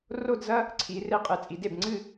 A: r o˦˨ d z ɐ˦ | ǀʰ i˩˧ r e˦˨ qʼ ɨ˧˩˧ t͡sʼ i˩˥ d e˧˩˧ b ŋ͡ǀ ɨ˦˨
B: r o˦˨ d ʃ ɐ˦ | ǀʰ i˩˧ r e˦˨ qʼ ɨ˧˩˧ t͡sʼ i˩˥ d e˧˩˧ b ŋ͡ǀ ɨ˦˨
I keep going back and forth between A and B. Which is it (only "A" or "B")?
A